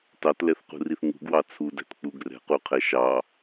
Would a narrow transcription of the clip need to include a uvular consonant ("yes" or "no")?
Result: yes